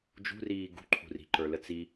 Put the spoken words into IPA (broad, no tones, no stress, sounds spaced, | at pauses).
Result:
d͡ʒ ṳ r iː ɡ ṳ ǃʰ ṳ r i̤ ǃ ə˞ l ə t͡s i